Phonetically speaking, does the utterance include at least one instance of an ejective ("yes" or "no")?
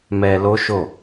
no